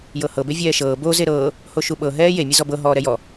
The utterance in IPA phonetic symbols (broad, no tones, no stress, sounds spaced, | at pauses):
j ɤ h ɤ b e vʲ ɛː ʃ ɤː b o z e ɾ ɤː | h o ʃ u ɓ ɤ ɦ ɛː j e mʲ e z ɔ b ɤ ɦ ɔː ɾ ɛ j ɔ